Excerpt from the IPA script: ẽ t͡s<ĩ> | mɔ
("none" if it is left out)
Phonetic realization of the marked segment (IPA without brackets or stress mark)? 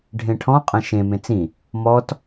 ĩ